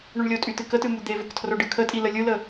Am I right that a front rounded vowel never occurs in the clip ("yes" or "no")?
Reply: no